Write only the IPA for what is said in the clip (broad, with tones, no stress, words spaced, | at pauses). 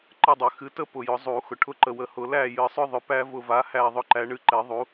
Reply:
ǃə˦˨dˤʏ˨˩˦xɨ˨˦tə˦ pʊ˨jʊ˨˩˦zˤu˨˩˦ xʊ˨ʈʰʊ˦˨ǃə˨ wə˨hʊ˨ læ˦˨jɨ˨˩˦sˤʏ˦ðˤʏ˨ pæ˦ vʊ˦˨va˨˦hæ˦˨ ðˤʊ˦ǃæ˨˦ ɳɨ˨˦ǃɛ˨˩˦ðˤu˨˦